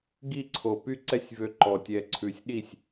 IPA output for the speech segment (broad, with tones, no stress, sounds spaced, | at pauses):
ɡ i˥˧ ǀʰ o˨˩ p y˥˧ ǀ ɛ˥˧ sʲ v ø˧ ǃ ɔ˨˩ tʲ ɛ˧ ǀʰ ʉ˨˩ sʲ ɗ i˥˩ sʲ